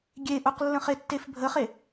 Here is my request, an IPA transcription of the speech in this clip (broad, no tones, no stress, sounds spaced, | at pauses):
ɡʲ e ʔ u q lː ə̃ χ e tː e f bʱ ə χ e